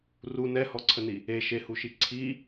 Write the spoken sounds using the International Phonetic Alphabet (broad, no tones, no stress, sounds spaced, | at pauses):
r u n ɛ h ɔ ǀʰ ə n i | e ʃ e h u ʃ i ǀʰ i